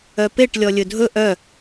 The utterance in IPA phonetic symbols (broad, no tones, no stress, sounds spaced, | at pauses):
œ p e ʈ lʲ ɔ lʲ ɵ dʱ ɵ ʔ œ